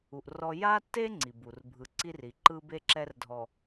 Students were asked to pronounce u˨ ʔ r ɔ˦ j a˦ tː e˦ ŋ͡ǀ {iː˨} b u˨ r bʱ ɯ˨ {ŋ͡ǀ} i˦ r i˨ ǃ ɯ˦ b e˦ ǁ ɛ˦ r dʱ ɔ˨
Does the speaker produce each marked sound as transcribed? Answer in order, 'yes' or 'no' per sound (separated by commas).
no, no